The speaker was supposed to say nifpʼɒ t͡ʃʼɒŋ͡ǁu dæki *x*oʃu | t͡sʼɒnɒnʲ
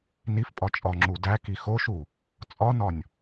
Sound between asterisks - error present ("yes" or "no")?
no